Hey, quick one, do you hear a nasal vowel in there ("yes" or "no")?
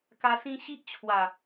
yes